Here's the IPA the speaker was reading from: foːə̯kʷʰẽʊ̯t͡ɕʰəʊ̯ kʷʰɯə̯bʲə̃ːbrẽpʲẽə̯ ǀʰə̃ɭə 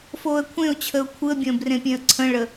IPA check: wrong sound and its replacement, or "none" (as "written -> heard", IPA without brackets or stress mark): none